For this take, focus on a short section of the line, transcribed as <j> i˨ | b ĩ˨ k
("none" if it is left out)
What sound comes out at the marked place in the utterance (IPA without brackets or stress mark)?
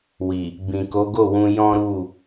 w